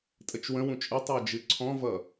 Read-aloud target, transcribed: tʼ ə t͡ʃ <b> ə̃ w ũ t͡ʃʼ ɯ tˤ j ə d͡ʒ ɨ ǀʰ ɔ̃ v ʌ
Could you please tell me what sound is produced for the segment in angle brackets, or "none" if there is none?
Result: w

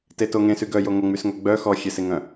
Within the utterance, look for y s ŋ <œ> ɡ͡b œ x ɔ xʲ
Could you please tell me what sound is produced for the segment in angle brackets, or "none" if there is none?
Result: œ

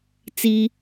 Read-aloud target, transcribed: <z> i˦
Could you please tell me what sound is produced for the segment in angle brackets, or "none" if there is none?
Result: t͡s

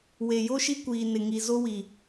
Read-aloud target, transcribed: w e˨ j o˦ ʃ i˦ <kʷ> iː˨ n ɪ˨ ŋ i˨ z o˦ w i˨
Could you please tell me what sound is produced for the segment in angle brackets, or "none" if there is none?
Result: kʷ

